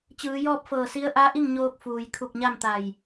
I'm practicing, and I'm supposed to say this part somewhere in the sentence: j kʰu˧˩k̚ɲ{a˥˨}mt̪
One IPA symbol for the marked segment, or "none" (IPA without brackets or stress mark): a˥˨